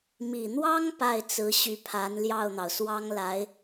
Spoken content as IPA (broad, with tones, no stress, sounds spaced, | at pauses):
m i˨˩ n̪ w ɑ˥ ŋ p a˥˩ ɪ̯ t͡s ɹ̩˧˥ ɕ y˧˥ pʰ a˧˥ n l j ɑ˥˩ ʊ̯ n̪ ɑ˩ ʊ̯ s w ɑ˥ ŋ l a˧˥ ɪ̯